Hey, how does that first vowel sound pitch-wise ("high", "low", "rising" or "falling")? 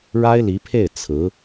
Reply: high